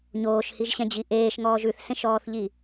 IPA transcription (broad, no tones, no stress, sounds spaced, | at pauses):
ɲ oː ʃ h i ʒ ɕ ɛ̃ d͡ʑ i ʔ eː ʃ ŋ ɔː ʒ ʉ θ s ẽ ʃ ɔː θ ʎ i